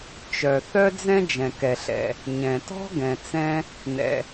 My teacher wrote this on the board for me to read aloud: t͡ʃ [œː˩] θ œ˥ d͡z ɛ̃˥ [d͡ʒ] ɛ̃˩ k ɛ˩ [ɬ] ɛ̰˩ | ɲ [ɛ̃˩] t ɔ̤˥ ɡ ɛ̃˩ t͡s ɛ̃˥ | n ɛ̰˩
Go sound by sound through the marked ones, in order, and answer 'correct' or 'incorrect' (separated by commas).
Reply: incorrect, correct, correct, correct